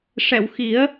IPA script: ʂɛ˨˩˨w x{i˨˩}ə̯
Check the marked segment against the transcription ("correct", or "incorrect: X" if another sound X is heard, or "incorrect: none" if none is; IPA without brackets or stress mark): incorrect: i˨˩˦